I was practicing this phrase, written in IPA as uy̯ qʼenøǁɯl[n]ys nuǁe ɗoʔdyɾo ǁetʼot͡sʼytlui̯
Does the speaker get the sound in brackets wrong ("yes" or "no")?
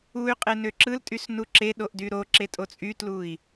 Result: yes